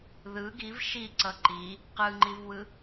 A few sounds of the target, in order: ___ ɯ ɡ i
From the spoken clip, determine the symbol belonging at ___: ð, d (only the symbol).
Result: ð